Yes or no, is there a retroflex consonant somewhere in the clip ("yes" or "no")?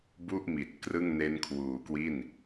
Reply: no